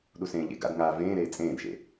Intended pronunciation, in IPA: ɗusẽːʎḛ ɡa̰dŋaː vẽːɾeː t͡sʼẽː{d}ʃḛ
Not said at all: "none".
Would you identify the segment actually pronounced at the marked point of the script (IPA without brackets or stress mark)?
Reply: d